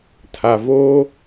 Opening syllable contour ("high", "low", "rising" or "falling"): low